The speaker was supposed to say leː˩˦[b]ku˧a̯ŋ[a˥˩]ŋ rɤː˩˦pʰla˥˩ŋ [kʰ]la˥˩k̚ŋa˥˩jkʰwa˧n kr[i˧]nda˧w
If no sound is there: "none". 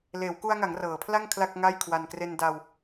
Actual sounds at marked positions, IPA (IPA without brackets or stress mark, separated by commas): w, a˩˦, kʰ, e˧